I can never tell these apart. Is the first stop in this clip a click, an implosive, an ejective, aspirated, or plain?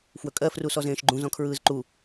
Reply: ejective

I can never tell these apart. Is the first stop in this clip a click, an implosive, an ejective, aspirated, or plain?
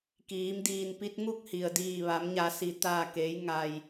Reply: plain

